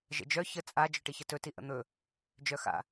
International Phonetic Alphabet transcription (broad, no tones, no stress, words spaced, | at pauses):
ʒə̰d͡ʒœ çə t͡sʼa d͡ʒœʈiçətɵ tiʔə̰n̪ɵ | d͡ʒœxa̰